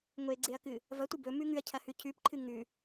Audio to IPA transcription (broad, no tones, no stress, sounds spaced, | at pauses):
ŋʷ e ɡ͡ǀ e ɐ̯ k ɨ | v ɐ tʷ ɨ b ɵ m ʉ ŋ ʉ ɐ̯ cʰ ɐ h ʉ cʰ ʉ p ǃʰ ɨ ŋ ʉ